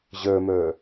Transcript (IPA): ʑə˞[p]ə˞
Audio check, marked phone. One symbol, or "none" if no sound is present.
m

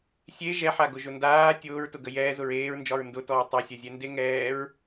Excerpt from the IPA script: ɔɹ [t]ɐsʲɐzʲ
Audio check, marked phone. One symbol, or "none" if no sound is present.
tˤ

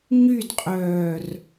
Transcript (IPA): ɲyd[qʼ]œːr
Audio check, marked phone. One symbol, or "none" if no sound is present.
qʼ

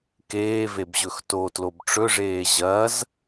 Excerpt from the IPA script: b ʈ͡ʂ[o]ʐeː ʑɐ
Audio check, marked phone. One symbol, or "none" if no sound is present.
ɵ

